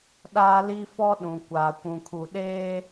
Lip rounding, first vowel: unrounded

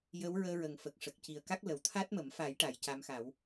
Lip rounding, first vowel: unrounded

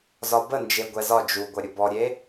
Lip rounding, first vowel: rounded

